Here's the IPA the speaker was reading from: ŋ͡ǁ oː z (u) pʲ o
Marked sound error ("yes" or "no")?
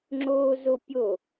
yes